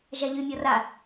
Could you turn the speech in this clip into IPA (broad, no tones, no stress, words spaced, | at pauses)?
ʒaʎymʲɔ ra